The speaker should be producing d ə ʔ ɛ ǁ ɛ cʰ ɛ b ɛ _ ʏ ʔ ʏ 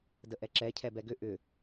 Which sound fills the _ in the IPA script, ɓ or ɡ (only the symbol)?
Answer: ɡ